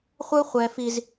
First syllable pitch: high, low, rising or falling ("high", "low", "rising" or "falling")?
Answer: high